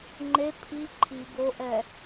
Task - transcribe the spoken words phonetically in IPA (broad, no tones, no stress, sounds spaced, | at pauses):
ŋ͡ǃ e pʰ i ǃʰ i b o ʔ ɛ